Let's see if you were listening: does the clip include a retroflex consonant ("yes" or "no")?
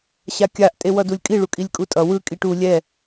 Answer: yes